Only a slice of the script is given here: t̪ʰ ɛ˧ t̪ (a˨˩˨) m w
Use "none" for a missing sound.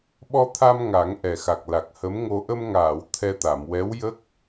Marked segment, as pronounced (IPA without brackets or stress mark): a˨˩˨